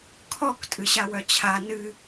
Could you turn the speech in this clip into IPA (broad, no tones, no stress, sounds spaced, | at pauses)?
kʰ ɔ k tʼ ɨ ɕ a w œ t͡ɕʰ a n ɨ